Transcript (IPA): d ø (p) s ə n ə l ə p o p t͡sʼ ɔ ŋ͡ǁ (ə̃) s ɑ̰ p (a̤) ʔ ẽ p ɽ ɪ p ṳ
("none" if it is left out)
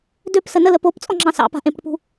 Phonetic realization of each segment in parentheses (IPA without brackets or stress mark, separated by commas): p, ɑ̃, a̤